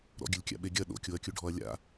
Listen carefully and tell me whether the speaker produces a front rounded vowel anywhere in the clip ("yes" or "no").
no